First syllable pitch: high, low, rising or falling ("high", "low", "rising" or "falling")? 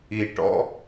low